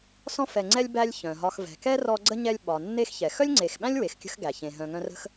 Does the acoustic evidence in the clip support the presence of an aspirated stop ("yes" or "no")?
no